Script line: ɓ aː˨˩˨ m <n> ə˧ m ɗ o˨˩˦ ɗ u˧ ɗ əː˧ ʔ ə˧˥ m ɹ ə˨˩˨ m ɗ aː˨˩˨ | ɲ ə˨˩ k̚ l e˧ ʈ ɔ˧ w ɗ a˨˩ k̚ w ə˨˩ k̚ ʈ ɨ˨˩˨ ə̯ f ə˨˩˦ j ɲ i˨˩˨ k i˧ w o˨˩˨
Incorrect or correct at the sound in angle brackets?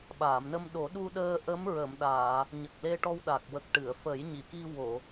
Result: correct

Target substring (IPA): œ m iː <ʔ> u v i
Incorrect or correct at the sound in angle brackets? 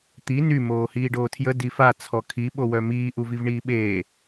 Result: correct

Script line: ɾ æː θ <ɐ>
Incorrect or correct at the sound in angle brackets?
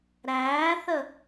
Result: incorrect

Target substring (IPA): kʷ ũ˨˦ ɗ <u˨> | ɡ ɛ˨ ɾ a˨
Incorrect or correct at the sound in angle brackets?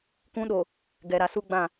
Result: incorrect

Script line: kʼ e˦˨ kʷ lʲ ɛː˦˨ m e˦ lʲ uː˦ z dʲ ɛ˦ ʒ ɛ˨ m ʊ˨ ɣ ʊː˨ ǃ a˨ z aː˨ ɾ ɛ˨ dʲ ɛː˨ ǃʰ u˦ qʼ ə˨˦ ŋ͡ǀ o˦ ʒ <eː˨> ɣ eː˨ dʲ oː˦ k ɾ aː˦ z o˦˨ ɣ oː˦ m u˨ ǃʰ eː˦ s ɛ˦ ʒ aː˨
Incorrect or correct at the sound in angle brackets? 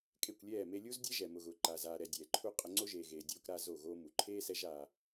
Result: correct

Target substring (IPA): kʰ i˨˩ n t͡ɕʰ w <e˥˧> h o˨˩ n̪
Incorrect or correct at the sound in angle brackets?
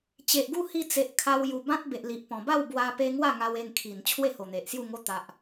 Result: correct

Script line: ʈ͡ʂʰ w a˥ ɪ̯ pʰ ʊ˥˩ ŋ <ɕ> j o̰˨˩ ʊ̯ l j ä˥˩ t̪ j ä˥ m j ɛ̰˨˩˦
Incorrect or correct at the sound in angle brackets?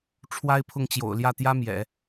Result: incorrect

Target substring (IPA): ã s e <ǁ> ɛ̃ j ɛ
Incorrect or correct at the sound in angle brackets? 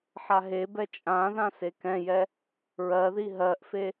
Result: incorrect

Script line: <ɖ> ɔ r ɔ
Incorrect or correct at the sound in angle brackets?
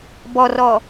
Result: incorrect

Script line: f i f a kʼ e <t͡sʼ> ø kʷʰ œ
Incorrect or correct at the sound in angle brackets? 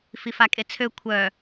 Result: incorrect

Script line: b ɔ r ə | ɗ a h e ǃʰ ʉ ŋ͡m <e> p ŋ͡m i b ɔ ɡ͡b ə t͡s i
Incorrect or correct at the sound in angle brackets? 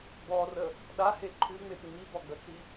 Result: correct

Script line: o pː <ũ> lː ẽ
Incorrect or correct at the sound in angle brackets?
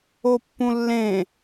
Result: correct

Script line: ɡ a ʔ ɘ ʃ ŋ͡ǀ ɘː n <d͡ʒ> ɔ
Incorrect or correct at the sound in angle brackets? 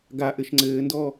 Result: incorrect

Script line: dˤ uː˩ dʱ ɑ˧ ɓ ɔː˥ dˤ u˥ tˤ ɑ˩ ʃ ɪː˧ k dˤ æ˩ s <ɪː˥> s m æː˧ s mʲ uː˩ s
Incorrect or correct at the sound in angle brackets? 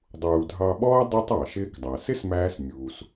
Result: incorrect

